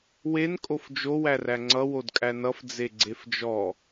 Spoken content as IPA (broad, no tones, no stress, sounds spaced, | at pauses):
w e n kʼ o f d͡ʒ o w æ r æ ŋ͡ǀ ʌ w o d kʼ æ n ʌ f d͡z e ɡ͡ǀ e f d͡ʒ ɔ